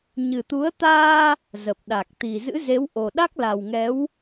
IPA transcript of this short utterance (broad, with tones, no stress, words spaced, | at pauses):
ɲɨ˨˩t̪u˨˦ə̯ t̪aː˧ | zə˨˩p̚ɗa˨˩k̚t̪i˨˩ zɨ̰˧˥ze˨˦wʔo˨˩ ɗa˦˥k̚la˨˩wŋɛ˨˦w